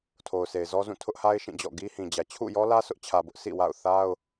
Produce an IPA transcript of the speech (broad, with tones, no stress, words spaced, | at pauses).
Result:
tʰo˨ʊ̯sʰe˨ɪ̯zɔ˦zũ˦˨ tʰʊ˦ʔha˦ɪ̯ ʃĩ˦˨d͡ʑɔ̰˦˨ ɡi˦hĩ˨d͡ʑä˨ t͡ɕʰṵ˦˨jɔ˦lä˦ sʰʊ˦ʔt͡ɕʰä˨bʊ˦ʔ sʰḭ˦˨wa̰˦˨ʊ̯ θa˦ʊ̯